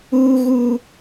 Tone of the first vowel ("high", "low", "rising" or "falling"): high